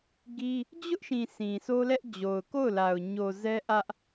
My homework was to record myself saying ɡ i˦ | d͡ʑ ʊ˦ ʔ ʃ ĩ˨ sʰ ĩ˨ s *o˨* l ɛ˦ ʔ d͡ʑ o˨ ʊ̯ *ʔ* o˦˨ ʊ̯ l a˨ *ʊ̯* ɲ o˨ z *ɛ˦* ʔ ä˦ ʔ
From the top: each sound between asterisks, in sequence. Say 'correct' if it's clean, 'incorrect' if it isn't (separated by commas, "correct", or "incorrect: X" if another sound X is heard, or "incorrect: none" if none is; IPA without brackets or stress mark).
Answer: incorrect: o˦, incorrect: k, correct, correct